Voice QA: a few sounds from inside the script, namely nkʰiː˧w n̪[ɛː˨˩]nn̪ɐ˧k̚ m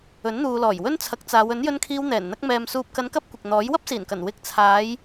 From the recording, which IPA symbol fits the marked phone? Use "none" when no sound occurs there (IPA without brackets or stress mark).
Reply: ɛː˨˩